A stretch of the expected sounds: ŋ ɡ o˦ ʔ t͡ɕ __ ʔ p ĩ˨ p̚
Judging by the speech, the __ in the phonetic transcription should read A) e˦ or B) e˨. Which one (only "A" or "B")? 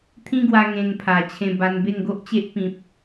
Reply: A